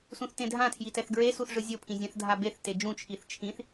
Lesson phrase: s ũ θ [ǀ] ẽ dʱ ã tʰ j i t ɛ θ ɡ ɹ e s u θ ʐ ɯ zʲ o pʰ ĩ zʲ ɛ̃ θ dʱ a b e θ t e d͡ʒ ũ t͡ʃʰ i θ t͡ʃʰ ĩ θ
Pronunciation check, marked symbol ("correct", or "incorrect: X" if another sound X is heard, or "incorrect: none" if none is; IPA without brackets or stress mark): incorrect: t